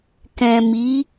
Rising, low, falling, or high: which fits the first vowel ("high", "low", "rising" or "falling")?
low